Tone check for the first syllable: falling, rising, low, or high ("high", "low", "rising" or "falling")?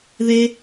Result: high